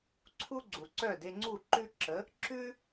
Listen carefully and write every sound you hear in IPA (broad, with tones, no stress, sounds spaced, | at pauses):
ǀʰ u˥ ɡ͡ǀ u˩ ǀ œ˥˩ d e˧ ŋ͡ǀ u˥˩ ǃ ʉ˥ ǁ ə˩˥ | ǁ ʉ˥